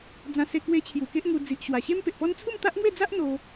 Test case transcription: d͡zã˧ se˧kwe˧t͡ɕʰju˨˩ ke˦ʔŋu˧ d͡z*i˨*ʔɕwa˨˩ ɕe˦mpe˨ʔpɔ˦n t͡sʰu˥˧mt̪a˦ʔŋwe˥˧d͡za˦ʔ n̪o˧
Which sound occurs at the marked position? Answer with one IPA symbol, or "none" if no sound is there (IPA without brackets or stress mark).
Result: i˨